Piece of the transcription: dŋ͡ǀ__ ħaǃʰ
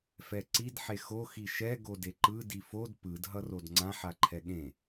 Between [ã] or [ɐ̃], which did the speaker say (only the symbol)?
ã